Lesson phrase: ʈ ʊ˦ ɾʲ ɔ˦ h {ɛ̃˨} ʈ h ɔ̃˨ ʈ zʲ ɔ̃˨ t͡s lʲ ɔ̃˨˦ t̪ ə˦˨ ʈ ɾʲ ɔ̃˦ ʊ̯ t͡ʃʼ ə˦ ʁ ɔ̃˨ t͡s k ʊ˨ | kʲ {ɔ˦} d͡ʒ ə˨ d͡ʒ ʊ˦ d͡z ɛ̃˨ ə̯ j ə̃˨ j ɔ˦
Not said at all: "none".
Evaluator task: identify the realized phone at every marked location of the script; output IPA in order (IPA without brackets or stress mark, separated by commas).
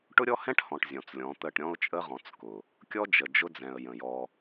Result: ɛ̃˦, ɔ˦